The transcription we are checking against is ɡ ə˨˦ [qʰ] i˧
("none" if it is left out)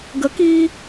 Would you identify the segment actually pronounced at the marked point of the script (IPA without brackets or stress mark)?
k